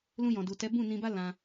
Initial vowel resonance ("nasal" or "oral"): nasal